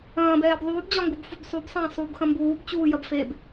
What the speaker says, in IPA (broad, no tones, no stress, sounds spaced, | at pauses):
ɐ̃ː b ɛː b ðˤ uː b d͡ʑ ɒ ŋ ɡ u b f u b sˤ u b sˤ ɐ̃ː sˤ u b x ɐ̃ m b uː b t͡ɕ uː j ɐ b f e b